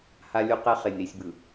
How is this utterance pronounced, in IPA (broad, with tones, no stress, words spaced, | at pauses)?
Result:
ha˦lʲu˦qɛ˦ χe˨nʲɾi˨sʲbɯ˨